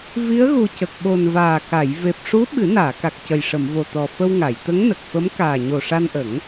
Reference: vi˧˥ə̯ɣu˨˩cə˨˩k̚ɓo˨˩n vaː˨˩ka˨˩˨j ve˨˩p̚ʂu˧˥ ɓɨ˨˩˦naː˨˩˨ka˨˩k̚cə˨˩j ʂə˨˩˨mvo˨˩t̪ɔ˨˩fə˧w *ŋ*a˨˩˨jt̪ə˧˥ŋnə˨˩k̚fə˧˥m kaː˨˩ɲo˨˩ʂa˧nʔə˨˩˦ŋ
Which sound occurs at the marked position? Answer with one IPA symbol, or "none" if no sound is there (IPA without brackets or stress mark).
ŋ